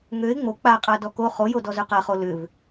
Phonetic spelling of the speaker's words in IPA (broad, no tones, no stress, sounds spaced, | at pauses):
ŋ ø ɪ̯ ŋ͡m o k͡p a qʼ a d ɔ k o χ o j o d ɔ z ø q a χ o l ʏ v